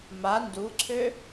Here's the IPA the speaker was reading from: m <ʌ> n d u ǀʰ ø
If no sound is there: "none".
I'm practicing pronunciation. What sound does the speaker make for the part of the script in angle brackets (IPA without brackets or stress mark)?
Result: a